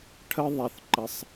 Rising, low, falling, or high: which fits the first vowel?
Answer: high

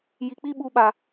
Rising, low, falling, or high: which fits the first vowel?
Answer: low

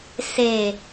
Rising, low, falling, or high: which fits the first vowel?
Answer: low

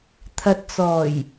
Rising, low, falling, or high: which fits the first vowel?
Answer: low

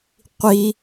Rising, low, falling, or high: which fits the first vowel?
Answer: high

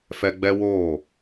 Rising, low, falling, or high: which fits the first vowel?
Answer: high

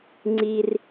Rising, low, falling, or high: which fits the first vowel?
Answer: high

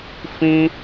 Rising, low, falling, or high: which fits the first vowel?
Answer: high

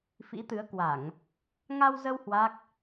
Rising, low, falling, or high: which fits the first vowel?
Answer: rising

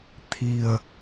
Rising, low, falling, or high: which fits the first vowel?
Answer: low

